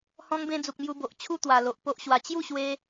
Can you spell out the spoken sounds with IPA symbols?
h ɔ̃˧ ŋ b ẽ˧ d͡z u˨ k̚ m j u˧ b o˨ ʔ t͡ɕʰ u˥˧ t̪ w a˨˩ l o˨ ʔ p o˦ ʔ ɕ w a˧ t͡ɕ j u˥˧ ɕ w e˧

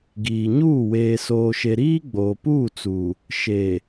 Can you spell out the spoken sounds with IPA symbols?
ɡ iː˨ ɲ uː˦˨ w eː˨ s oː˨ ʃ e˨ ɾ iː˦ ɡ͡b oː˨ p uː˦˨ t͡s uː˨ | ʃ eː˨

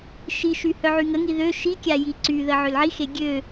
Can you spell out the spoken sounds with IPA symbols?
ʃ i ʃ y h œ ʕ y ŋ ə ŋ i ð ø ʃ i kʲ a j i ǀ y ð ə ʕ ø l ʕ i x e ɡʲ ø

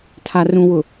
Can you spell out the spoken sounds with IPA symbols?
tʰ a˨ r ũ˨ w ʊ˨

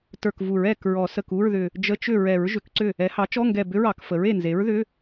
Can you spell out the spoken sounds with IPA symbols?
t ə˞˧˩ k v u˨˩˦ ɹ ɛ˥˩ k ɹ ɔ˨˩˦ s ə˧˩ k u˧˥˧ ɹ ð ʏ˧˩ | d͡ʒ ə˧˥˧ t͡ʃ ʏ˥˩ ɹ ɛ˨˩˦ ɹ ʒ ʏ˨˩˦ k ǀ ʏ˥˩ | ɛ˩˥ h ɑ˩˥ t͡ʃ ɔ˧˥˧ ŋ ɡ ɛ˧˩ b ʏ˧˥˧ ɹ ɑ˨˩˦ k f ə˩˥ ɹ e˧˩ n z e˩˥ ɹ ð ʏ˧˥˧

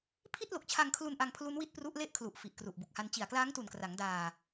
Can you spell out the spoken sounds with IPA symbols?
pʰ i˥˩ t̚ l o˨˩ k̚ t͡ɕʰ a˧ ŋ kʰ l u˧ n ʔ a˧ ŋ pʰ l u˦˥ n w i˥˩ t̚ p r u˦˥ ʔ l e˥˩ ʔ kʰ l u˨˩ ʔ f i˨˩ ʔ k r u˨˩ ʔ b u˨˩ k̚ h a˧ n t͡ɕ i˨˩ a̯ k l aː˦˥ ŋ t u˨˩ n k r a˩˦ ŋ d aː˧

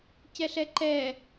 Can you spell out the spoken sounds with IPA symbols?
c ɛ ɬ ɛ ǃ ɛ

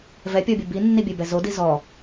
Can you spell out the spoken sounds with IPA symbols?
v ɛ pʲ ɔ bʲ ɯ b i nː i bʲ ɛ b ɛ z o d i z ɔ

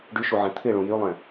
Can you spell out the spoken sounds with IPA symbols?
ɖ y ʃ u ʕ ɛ̃ t̪ʰ ɪ ɭ ũ j y lˠ ɛ̃

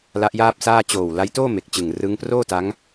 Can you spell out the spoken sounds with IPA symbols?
l a˦˥ ʔ j aː˥˩ p̚ s aː˥˩ t͡ɕ oː˨˩ w l a˦˥ j t oː˥˩ m e˨˩ k̚ t͡ɕ ɯ˨˩ ŋ r ɯ˦˥ ŋ p r oː˥˩ t a˦˥ ŋ

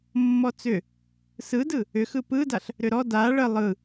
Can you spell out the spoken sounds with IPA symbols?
mː ɔ t͡s ʏ | s ɯ d ɯ | ʏ x ɯ p ɯ d a ɬ | ɾ ʏ ɾ ɔ d a ɭ ə lˠ ɯ

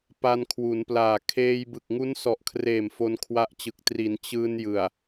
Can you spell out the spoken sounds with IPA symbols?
p a˧ n kʰ w u˩˦ n p l aː˨˩ kʰ eː˧ j b ɯ˨˩ k̚ ŋ u˦˥ n s ɔ˨˩ ʔ kʰ r eː˨˩ m f o˧ n kʰ w a˦˥ ʔ t͡ɕ ɯ˨˩ k̚ t r i˩˦ n t͡ɕ ɯː˧ n j ɯ˨˩ a̯

